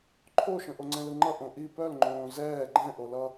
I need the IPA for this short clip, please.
ǃʰoʃə̃ ʔoŋ͡ǀɛ̃lɯŋ͡ǃʌ ʔõʔi pœlŋ͡ǃõː zɛː ɡ͡ǃɛ̃ʔolʌ

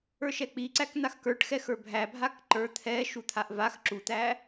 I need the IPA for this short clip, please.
ə˞ʃɛk͡piǀæk n̪axkə˞ʈxɛxə˞ bʱæbʱak ǃə˞ t̪ʰɛʃut̪ʰaʔ vax ǁut̪æ

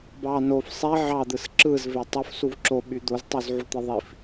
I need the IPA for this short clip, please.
bɑ nof sˤe ʕɑd̪ɯs ǁɯzve tˤofsuv ǁoɓy d̪oztˤyzʕut̪e ðˤif

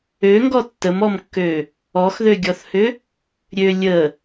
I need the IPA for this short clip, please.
øŋɡɔ tːəmɔmkːø | ɔxðøɡʲɔθhʏ | ɾʲø lʲə

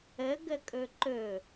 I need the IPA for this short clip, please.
əɡəkʼɵ ǃɵ

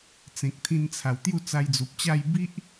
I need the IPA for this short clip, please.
t͡sẽ˨k̚t̪ʰĩ˧nt͡sʰa˨˩w t̪ju˥˧t͡sa˧jd͡zu˨p̚t͡ɕa˥˧j bi˦ʔ

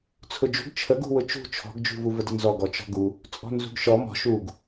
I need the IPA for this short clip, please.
t͡sʰʊd͡ʒṳɡ t͡ʃʰəɡṳwʊ t͡ʃṳ t͡ʃʰɔ̤ɡd͡ʒṳvu vədənzɔɡɔ t͡ʃɔ̤ɡu | t͡sʼɔ̤nzṳɡʃɔ mɔ̤ ʃuɡ

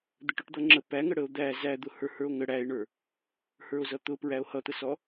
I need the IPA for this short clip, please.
d̪əʈʊʈd̪ʌŋ͡ǁə pæŋə ɽəo̯d̪æ zæd̪ʊ hə˞hə˞o̯ŋə ɽæe̯ɳə˞ | hə˞o̯zʌt̪ʊpɹæo̯ hʌt̪əsɔ

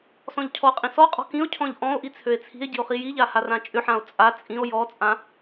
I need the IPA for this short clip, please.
sɔ̃ʎcʰɔqʼĩ sɔqʼɔ̤ kĩo̯cʰɔ̃ʎ ʔɔ̃o̯ʔi t͡sʰøe̯t͡sʰi̤e̯ɟi̤o̯ χijiʎa harãt͡ʃʼʏħão̯ t͡sʼa t͡sʼĩo̯ jɔt͡sʼã

